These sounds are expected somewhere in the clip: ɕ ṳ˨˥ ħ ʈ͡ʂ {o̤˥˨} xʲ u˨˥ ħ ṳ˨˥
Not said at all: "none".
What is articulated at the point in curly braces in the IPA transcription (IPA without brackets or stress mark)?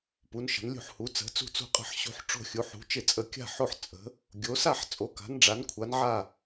o̤˥˨